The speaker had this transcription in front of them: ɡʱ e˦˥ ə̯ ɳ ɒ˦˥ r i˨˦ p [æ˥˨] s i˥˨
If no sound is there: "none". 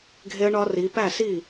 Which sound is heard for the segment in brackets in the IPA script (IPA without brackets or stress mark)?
æ˥˨